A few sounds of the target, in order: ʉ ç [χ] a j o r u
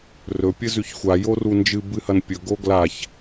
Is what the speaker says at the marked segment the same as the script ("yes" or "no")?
no